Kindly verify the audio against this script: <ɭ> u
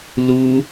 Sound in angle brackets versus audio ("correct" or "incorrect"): incorrect